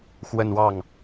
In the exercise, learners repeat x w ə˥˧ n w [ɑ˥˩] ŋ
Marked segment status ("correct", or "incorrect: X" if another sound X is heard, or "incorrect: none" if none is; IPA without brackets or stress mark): correct